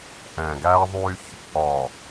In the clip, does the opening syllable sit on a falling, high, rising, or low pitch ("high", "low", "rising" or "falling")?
low